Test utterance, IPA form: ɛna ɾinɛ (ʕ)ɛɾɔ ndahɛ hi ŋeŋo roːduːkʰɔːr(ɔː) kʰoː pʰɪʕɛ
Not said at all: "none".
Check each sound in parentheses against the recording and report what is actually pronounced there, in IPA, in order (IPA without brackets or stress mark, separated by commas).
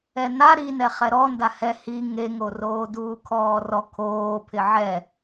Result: χ, ɔ